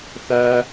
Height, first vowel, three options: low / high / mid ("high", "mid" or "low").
low